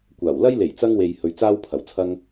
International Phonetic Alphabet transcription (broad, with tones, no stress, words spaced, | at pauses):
kʷaː˨˩wlɐ˥j le˨˩jt͡sɐ˧ŋwe˨j hɵ˧ɥt͡saː˥wpʰɐ˨˥w t͡sʰɐ˥ŋ